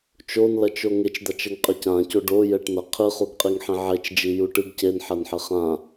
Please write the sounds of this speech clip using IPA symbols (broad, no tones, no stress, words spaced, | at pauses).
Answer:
t͡ʃonlɐt͡ʃo ŋet͡ʃd̪at͡ʃ ɘŋqʼɘcãco ɖo jɛʈnɐ qʰɨχuɡqʼiŋ ħĩʕet͡ʃd͡ʒi juʈɨɡ cenħɐnħɘ χã